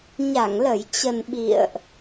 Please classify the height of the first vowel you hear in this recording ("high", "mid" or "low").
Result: low